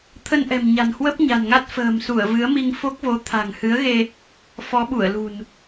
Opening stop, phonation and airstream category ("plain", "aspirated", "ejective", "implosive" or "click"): aspirated